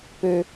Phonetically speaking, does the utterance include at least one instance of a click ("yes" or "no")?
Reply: no